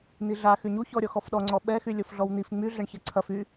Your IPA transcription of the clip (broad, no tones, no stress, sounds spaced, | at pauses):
n̪ i ɮ a x y ɲ u ç ɔ ɾʲ ɔ x ɔ f ɗ ɔ ŋ͡ǀ ɔ ɓ ɛ x y lʲ o f ɮ ɔ w n̪ i f ŋ͡m y ɮ ɐ ɳ ç ɐ ǀʰ ɐ f y